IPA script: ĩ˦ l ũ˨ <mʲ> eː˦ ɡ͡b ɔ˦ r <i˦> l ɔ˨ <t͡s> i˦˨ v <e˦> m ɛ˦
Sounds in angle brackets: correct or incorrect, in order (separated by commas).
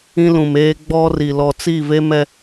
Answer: incorrect, incorrect, correct, correct